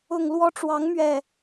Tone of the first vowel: low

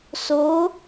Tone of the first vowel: rising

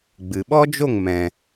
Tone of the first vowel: low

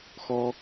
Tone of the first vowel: high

